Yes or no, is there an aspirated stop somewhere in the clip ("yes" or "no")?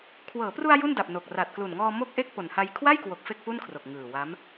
yes